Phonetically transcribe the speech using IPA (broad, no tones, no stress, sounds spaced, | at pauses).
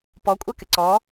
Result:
p ɔ kʷʼ ɛ k ɪ ǀ ɔ